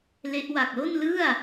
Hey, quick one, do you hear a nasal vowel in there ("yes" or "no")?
no